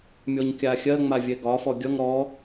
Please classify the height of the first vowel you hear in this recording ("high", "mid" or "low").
mid